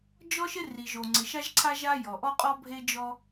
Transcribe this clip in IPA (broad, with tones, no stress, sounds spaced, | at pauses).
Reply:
d͡ʒ ɔ˥ ʃ ɪ˥ r i˩ ʒ o˩ ŋ͡ǀ ɪ˩ ʃ a˥ ʒ ǀʰ a˥ ʒ a˥ j ɔ˩ ʔ ɔ˥ qʼ ɔ˥ bʱ e˥ d͡ʒ ɔ˥